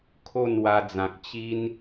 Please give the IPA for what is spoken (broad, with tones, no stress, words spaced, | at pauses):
kʰo˥˧nwa˧d͡zã˨k̚ t͡ɕi˦n